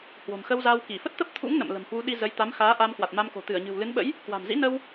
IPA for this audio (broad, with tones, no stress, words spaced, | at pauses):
hwo̤˨˩mxə˧wzaː˧w ki˧˩fə˦˥t̚t̪ə˦˥p̚t̪ʰṵ˧˥ŋ nə̰˧˨mlə̤˨˩mhwu˨˦ɗi˧ zə˨˦jt̪a˨˦mxaː˨˦ ʔaː˧mkwa˨˩t̚ma˧mko̤˨˩ t̪ɨ˧˩ə̯ɲɨ̤˨˩wlɨ˨˦nɓə̰˧˥j | kwa̤˨˩mzḭ˧˥nə˧w